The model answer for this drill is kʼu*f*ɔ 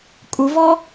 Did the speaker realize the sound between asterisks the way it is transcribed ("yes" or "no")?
no